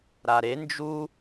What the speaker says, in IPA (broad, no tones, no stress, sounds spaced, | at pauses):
ɾ a ɾ e n d͡ʒ u